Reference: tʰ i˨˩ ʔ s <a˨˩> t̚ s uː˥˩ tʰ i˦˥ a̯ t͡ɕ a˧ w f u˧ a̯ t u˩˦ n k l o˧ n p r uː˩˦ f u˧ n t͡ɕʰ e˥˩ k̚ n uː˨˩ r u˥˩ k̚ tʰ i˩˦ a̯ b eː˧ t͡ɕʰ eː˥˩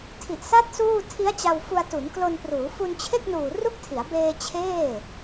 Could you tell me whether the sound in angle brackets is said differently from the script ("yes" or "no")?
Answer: yes